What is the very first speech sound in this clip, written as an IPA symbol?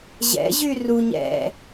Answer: ʑ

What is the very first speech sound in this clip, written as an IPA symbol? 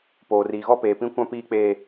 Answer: p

